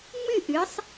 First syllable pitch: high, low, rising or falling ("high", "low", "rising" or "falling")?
falling